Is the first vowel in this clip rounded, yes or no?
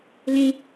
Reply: no